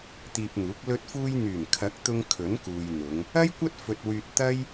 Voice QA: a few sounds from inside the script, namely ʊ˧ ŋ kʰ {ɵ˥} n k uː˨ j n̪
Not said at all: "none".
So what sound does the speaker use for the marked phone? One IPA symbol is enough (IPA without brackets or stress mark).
ɵ˨˥